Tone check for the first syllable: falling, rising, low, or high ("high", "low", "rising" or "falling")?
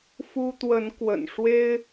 high